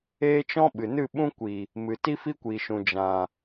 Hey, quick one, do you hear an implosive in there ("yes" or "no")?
yes